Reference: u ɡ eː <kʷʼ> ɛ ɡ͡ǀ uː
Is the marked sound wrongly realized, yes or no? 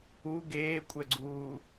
no